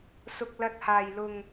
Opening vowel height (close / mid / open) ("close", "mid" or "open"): close